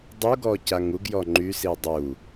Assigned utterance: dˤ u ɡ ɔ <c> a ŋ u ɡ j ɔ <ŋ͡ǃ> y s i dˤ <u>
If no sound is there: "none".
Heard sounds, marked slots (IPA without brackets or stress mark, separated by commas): c, ŋ͡ǃ, u